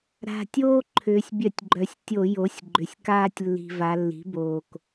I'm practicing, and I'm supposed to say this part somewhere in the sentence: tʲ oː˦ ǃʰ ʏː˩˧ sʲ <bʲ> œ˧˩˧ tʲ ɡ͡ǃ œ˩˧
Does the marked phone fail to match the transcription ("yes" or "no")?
no